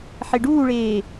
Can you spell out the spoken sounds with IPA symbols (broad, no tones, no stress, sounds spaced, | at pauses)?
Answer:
ħ e ɖ uː ɭ eː